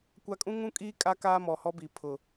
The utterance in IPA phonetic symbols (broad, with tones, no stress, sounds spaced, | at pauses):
kʷ a˦ kʼ ũ˦ ŋ ũ˦ kʼ iː˦ kʼ a˦ k aː˦ m ɔ˨ h ɔ˦ b i˨ pʰ ʊ˨